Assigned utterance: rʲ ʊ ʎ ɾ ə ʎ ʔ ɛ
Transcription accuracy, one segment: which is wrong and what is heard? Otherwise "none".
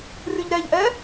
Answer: ə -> ɛ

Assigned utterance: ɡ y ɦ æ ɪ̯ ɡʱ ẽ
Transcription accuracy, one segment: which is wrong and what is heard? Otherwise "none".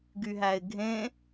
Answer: none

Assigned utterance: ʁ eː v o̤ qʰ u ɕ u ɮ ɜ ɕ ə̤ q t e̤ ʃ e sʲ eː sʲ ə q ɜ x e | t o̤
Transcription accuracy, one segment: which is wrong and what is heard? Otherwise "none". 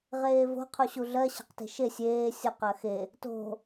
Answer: none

